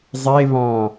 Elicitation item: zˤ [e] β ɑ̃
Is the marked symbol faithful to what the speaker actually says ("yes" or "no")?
yes